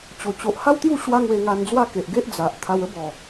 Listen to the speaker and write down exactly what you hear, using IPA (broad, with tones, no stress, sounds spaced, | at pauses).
t͡ɕ o˨˩ t͡ɕ o˨ ʔ h a˦ w t̪ j u˥˧ ɕ w a˦ ŋ w e˧ ŋ a˧ n d͡z w a˦ k e˨ ʔ ɡ e˦ ʔ d͡z a˨ ʔ t̪ʰ a˧ w ə˦ b ɔ˨˩